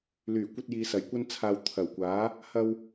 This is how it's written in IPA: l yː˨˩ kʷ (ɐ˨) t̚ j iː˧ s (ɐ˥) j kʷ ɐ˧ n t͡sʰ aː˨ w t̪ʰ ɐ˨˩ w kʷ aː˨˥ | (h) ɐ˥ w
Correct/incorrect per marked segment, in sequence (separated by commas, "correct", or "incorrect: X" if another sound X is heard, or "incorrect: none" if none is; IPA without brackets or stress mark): incorrect: ɐ˥, incorrect: ɐ˨˩, correct